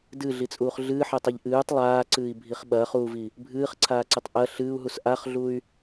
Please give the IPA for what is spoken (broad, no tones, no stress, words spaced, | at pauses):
dɨɮit͡sʼuːχ ɮɨːħetˤɨʎ ʔɨːtˤ lˠaːǀɨːi̯bʱiχ ɓɐːχuːvi | bʱɨːχǀʰaːǀɨtˤ ʔɐ ɬɨːu̯ɦus ʔaχɮuy̯